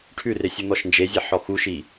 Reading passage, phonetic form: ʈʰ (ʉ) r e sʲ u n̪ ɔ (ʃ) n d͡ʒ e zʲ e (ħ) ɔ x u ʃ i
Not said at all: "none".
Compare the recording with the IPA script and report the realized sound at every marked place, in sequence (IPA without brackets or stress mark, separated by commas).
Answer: ʉ, ʃ, ħ